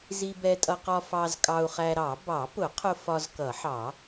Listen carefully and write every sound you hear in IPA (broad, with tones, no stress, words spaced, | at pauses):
zi˧bɛ˧tʼʌ˧qɒ˧ fɑ˧z kʼɑ˧u̯χæ˧ɾɑ˨˩˦ bɑ˨˩˦pʊ˨˩˦qʰʊ˧ fɒ˧zkʌ˨˩˦ħɑ˨˩˦